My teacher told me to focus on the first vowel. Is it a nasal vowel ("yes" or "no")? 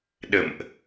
no